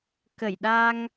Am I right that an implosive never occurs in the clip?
no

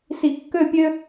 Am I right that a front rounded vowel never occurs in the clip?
no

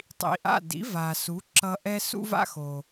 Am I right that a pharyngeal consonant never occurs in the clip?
yes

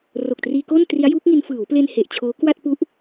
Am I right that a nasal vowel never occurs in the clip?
yes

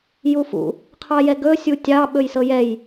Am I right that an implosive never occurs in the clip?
no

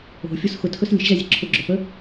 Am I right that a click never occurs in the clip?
no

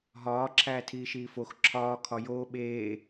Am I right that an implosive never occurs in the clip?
no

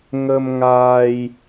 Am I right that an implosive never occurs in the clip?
yes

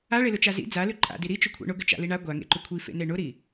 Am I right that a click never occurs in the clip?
no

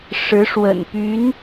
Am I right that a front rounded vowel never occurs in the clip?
no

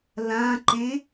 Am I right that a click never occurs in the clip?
no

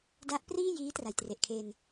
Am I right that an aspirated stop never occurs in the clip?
no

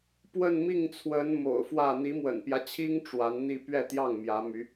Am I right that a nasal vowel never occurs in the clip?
yes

